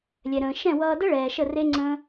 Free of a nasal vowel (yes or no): no